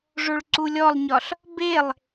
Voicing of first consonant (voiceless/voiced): voiced